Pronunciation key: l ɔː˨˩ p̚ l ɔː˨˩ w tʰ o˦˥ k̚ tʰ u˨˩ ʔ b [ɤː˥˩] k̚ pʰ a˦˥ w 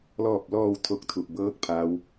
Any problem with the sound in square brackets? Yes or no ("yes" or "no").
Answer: no